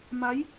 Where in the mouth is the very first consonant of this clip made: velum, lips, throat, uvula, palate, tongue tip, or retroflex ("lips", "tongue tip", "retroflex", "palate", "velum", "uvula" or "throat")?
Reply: lips